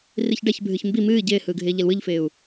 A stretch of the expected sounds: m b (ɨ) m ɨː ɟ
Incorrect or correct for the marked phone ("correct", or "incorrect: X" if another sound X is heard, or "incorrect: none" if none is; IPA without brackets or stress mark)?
incorrect: i